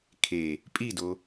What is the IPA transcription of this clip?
kʰ e | pʼ i d o

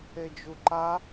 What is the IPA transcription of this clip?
e d͡ʒ u ǃ a

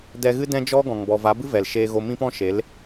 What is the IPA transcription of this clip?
d ɛ˧ ɣ ɨ˦ d ɛ̃˦ d͡ʒ ɔ˦ ɡ ɔ̃˨ ŋ b ɔ˨ v a˨˦ b ɨ˦ v ɛ˨ l ʃ eː˧ ɣ o˧ m ĩ˦ p ɔ̃˦ ʃ e˨˦ l

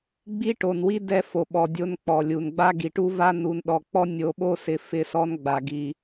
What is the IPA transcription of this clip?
ɡ͡b i˦ ʈ o˨ n w i˦ d ɛ˦ f o˨ ɓ ɔ˨ dʲ o˦ n k͡p ɔ˨ lʲ u˨ n ɡ͡b a˦ ɡ i˨ ʈ u˦ v a˦ n u˨ n ɗ ɔ˨ k͡p ɔ˦ nʲ o˨ ɓ o˦ s ɪ˨ f ɪ˦ s ɔ˦ n ɡ͡b a˨ ɡ i˨

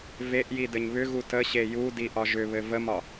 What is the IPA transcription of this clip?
v e ʔ j i d ɘ ɲ β ʏ ɣ u t ə ɕ e j u d i ʔ ɒ ʒ ʏ β ɘ v ə m ɒ

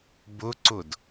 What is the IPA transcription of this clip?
b ʊ ǀ ʊ d

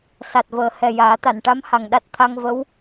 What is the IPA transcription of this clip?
s a˨˩ t̚ v əː˨˩ h ɛ˨˩ j aː˨˩˦ t̪ a˨˩˨ n ʈ a˧˥ m h a˨˩ ŋ ɗ a˦˥ t̚ t̪ʰ a˧ ŋ v ə˧˥ w

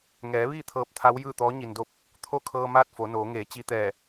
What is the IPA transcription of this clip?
ŋ ɛː˩˧ ʋ iː˥˨ t̪ʰ ɤː˧˥ p̚ t̪ʰ a˧˥ w j ɯː˥˨ t̪ ɔː˧˥ ɲ i˩ n d o˥˨ p̚ | t̪ʰ o˥˨ kʰ ɤː˧ m aː˥˨ t̚ f o˩˧ n oː˩˧ ŋ eː˩˧ t͡ɕ i˧ t̪ ɛː˧˩

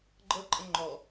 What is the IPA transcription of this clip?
ɡ͡ǃ ɤ ǃʼ ə̃ ŋ͡ǃ ɔ

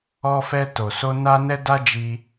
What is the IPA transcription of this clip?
ɔ˧ f ɛ˧ t o˨ s o˧ n a˧ n ɛ˧ d a˦ d͡ʒ i˧

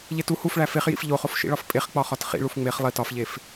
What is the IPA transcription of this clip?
ʎ e t u h u f ɭ æ f e χ j ḭ f ʎ o χ o f ʃ ḭ ɭ ɒ f pʼ e χ k͡p ɒ χ ɒ t χ ḭ ɭ u f ŋ͡m e χ lˠ i t ɒ f ʎ e f

